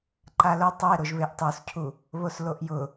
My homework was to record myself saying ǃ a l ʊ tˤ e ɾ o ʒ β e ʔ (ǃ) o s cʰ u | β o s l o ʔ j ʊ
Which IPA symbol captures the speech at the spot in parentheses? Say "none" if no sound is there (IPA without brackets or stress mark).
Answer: tˤ